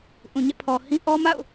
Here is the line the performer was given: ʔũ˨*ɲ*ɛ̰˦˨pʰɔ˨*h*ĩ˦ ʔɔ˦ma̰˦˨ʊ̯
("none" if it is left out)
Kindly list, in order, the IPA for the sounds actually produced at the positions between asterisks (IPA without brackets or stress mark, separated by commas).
ɲ, h